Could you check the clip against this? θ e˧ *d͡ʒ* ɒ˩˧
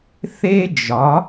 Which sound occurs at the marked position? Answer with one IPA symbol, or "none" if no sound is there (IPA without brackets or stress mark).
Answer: d͡ʒ